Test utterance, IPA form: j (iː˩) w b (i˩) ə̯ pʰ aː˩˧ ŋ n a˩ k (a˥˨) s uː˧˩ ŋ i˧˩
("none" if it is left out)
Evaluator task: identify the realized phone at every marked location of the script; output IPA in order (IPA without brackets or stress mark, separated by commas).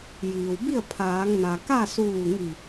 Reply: iː˩, i˥˨, a˥˨